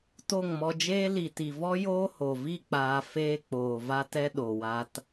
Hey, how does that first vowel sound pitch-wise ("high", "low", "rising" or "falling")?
falling